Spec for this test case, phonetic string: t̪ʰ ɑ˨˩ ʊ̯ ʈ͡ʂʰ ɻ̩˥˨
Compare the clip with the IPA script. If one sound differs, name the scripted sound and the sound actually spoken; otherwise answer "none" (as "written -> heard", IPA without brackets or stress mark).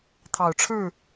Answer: none